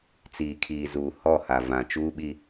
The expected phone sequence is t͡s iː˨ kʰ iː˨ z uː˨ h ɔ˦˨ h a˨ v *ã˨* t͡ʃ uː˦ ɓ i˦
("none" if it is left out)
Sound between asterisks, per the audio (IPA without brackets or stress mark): ã˨